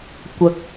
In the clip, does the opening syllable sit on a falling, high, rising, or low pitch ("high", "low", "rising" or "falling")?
low